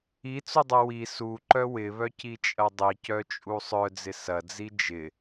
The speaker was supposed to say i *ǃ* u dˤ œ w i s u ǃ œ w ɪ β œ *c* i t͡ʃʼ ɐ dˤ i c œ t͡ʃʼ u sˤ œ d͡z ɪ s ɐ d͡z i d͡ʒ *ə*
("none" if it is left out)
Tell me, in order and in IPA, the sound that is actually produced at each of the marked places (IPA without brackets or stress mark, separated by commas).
t͡s, c, ɪ